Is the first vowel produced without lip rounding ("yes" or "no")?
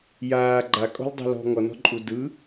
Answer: yes